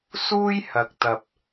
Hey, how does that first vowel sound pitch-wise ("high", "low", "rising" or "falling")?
high